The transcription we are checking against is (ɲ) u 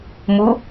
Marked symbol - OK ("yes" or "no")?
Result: no